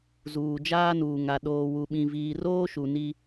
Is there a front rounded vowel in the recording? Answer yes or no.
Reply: no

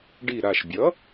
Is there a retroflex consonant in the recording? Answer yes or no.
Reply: yes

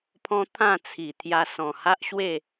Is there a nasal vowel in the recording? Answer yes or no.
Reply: yes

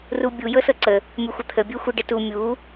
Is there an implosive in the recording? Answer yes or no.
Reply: no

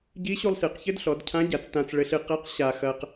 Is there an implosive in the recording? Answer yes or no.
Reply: no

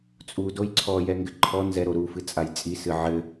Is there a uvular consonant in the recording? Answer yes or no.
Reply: no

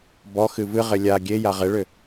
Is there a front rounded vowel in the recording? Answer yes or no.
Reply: yes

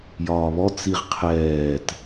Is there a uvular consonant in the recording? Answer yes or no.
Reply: yes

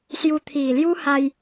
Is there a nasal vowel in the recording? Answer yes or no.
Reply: no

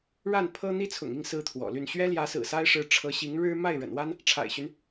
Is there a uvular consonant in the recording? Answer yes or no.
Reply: no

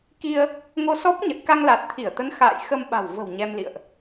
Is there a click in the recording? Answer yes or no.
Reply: no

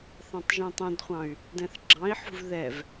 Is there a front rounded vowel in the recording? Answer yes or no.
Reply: yes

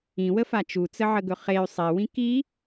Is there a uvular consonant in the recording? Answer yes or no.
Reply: yes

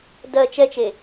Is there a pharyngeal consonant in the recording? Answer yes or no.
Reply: no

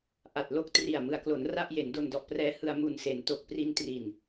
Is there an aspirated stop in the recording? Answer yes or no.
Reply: no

